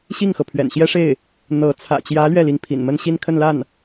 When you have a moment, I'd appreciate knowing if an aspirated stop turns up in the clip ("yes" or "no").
yes